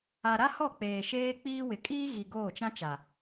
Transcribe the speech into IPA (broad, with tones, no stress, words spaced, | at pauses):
a˨ ɾa˦hɔ˦˨k͡peː˨ ʃeː˦k͡piː˦wɪ˨ kʼiː˦ ɣi˨ ɡoː˦˨t͡ʃã˦ t͡ʃa˨